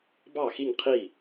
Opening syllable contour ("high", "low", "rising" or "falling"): falling